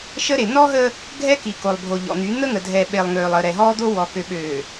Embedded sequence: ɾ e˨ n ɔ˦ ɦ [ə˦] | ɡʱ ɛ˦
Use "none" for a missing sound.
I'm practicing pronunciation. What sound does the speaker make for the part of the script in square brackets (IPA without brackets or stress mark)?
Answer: əː˦